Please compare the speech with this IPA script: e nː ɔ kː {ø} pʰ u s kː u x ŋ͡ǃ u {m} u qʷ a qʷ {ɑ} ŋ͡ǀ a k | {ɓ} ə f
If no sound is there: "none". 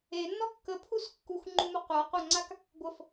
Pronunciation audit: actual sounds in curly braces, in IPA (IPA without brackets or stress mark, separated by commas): ə, m, a, ɡʷ